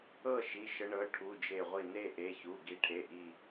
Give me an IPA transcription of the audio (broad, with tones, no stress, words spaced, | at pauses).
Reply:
ɤ˥˨ ʃi˩˧˩ʃə˨˦ ɳɤ˩˧˩ ʈʰu˩˧˩d͡ʒe˧˩ ʁʷi˧˩ne˥˨ʔe˩˧˩çu˩˧˩ ɡi˨˦ʈʰe˩˧˩ʔi˧˩